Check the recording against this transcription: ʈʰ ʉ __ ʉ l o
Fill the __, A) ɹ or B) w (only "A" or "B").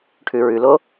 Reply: A